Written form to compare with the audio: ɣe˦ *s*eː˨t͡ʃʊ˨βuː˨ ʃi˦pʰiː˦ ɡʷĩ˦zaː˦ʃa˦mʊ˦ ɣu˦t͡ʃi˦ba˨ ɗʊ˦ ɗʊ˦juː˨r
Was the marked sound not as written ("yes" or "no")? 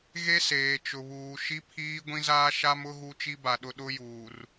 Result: no